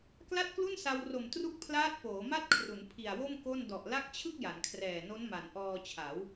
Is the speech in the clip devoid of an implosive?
yes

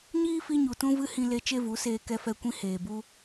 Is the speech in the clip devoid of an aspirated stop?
yes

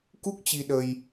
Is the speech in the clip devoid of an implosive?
no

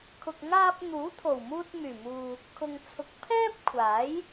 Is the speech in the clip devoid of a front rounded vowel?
no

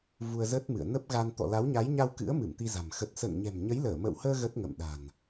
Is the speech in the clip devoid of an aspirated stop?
yes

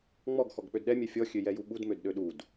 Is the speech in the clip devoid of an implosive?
no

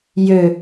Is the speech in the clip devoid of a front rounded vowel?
no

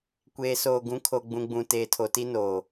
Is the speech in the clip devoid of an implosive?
yes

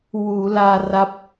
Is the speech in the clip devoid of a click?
yes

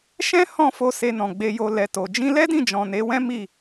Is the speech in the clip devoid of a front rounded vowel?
yes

